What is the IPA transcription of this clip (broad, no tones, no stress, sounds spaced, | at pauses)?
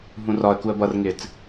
ɦ ũ r ɒ ə̯ k u ə̯ b ʌ r ŋ ɪː t͡s